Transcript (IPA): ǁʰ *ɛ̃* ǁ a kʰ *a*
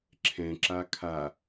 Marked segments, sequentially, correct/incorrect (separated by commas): correct, correct